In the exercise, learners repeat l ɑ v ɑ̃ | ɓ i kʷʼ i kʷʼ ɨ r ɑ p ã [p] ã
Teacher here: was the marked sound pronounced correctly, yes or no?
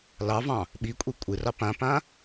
yes